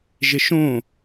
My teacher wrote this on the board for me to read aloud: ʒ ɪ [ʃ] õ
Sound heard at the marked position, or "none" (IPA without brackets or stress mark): ʃ